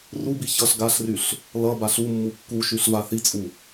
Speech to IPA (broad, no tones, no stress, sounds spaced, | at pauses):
r u b i ç ʌ ɬ ɡ a ɬ r y ɬ | l ʌ b a ɬ u mː u kː u ʃ y ɬ v a θ i t͡sʼ u